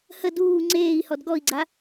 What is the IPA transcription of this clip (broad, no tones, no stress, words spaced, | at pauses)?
hə duː ŋ͡ǀeːi̯hɔd ɡɔi̯ɡ͡ǀa